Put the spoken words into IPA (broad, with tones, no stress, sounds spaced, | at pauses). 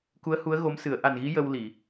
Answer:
k u˧˥ ə̯ h u˧˥ ə̯ ɣ o˧˥ m s ɨ˨˩˦ ə̯ ʔ a˨˩ n ɣ i˧˥ j ə˧ w l i˨˩˨